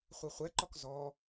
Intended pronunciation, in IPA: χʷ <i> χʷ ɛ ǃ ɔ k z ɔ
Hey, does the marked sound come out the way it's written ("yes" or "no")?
yes